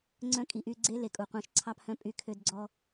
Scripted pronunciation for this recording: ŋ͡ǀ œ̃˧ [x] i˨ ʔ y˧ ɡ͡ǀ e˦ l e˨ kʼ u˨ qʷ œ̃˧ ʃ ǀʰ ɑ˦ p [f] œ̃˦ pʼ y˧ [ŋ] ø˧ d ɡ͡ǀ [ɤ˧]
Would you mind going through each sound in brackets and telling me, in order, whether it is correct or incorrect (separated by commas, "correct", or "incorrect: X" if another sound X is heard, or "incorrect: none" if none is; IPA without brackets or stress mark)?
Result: incorrect: kʼ, incorrect: h, incorrect: kʰ, incorrect: ɔ˧